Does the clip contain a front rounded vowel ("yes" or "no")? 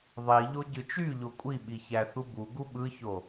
yes